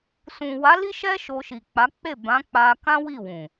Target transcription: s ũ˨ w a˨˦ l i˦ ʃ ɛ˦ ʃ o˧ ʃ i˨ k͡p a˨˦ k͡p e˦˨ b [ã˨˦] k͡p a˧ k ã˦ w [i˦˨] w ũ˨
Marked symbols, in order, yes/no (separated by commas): yes, yes